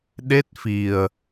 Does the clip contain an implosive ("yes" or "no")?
yes